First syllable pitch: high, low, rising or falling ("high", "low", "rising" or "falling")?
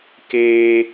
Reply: high